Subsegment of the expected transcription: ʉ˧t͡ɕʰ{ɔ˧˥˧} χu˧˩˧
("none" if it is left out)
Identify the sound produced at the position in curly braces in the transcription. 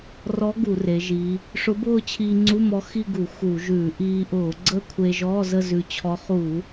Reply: ɔ˧˥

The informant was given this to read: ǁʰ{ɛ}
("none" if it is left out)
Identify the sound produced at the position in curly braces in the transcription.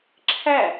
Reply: æ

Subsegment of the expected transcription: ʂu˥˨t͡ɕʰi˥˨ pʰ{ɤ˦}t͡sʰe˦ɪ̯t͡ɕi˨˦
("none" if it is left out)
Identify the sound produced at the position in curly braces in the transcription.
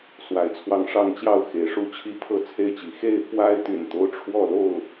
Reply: ɤ˥˨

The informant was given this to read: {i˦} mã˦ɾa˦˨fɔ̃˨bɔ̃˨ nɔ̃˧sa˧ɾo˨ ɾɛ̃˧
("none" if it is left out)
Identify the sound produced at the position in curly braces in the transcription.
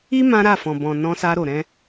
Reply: i˦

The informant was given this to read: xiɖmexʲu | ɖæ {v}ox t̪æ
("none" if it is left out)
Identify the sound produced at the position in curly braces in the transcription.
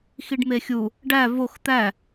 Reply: v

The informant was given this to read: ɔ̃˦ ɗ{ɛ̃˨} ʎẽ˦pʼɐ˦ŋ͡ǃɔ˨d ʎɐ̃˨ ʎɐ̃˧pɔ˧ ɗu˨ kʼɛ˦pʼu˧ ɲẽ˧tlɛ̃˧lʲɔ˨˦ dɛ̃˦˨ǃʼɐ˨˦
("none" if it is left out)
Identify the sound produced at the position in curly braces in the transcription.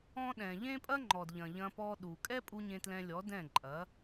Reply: ɛ̃˨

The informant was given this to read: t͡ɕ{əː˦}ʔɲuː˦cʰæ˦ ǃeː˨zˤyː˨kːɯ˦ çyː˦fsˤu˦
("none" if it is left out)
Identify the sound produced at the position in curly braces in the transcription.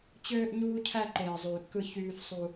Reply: øː˦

